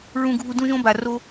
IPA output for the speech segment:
ɹ ũ˧ ɡʱ u˧ d ũ˦ ʒ õ˦ b a˨ r o˧

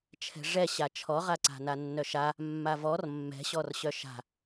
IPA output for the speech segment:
t͡ʃʰ ɛ̤ ʐ ɛ ɕ a t͡ʃʰ ɔ ʁ a ǀ a̤ n a nː œ ʃ a | mː a v ɔ r mː ɛ̤ ɕ ɔ r ɕ œ ʃ a̤

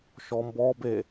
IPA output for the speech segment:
ʃ ɔ m b ɔ b e

